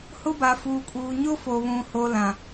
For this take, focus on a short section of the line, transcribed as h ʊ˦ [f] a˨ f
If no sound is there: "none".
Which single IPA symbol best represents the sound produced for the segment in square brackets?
b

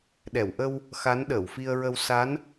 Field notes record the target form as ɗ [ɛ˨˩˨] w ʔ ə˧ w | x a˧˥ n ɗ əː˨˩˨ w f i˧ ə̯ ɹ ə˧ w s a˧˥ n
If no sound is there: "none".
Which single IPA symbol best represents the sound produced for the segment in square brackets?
ɛ˨˩˨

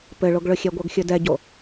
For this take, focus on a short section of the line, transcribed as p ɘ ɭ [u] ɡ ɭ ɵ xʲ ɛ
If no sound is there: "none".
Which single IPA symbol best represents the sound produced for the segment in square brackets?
o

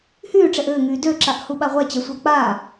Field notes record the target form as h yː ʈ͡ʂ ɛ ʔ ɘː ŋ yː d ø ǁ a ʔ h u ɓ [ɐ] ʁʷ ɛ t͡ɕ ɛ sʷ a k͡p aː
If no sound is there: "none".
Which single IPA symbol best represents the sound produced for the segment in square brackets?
a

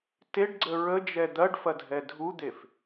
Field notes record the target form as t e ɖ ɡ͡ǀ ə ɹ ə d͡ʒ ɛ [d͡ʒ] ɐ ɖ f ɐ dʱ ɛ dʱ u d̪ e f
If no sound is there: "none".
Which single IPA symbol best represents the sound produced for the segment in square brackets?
d̪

